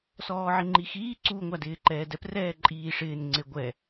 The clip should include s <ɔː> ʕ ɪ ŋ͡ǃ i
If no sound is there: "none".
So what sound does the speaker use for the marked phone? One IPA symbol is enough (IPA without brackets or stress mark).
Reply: ɔː